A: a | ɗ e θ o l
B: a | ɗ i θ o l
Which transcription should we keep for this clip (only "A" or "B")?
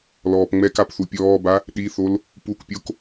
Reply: B